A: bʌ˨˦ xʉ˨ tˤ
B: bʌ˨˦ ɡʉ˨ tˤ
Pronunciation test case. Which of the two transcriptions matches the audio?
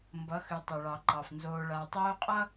A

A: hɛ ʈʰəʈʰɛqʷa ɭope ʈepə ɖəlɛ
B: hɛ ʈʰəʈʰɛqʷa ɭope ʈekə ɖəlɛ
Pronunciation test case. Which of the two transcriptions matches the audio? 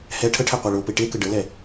B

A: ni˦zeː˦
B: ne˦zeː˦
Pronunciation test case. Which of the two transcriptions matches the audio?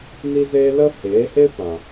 A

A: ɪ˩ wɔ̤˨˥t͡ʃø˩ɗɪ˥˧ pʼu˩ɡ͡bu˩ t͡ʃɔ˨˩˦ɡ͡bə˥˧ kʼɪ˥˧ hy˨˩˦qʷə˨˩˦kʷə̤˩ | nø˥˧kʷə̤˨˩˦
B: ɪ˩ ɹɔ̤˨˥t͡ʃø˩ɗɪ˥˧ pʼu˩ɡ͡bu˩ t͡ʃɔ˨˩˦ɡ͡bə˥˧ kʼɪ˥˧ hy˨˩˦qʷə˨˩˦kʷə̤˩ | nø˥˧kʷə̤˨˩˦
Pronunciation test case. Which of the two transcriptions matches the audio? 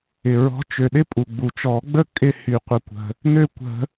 B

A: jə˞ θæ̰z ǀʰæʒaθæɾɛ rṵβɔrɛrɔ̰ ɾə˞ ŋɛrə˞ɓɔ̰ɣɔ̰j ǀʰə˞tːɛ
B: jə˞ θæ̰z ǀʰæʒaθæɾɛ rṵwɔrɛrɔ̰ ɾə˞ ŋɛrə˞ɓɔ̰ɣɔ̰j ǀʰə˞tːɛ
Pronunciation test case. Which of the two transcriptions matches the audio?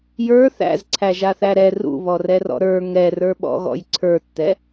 A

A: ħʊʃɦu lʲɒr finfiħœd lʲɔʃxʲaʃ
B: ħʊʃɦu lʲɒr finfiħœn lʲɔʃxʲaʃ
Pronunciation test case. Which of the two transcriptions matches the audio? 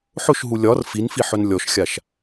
B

